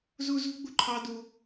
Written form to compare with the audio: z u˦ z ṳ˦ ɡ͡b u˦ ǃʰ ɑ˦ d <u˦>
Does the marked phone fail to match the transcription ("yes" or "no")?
no